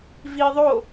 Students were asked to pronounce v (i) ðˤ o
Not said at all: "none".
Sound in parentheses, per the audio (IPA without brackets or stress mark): i